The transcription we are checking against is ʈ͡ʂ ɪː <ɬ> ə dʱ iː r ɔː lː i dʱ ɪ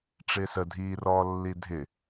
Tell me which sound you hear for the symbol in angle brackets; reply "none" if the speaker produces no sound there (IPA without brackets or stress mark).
s